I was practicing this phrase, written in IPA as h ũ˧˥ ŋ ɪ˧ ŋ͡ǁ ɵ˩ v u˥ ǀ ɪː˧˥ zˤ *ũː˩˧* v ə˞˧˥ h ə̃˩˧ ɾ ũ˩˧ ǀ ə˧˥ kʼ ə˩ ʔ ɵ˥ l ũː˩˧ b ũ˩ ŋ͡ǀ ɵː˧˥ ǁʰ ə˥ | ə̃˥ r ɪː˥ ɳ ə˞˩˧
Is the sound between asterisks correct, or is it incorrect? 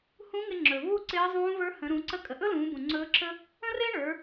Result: incorrect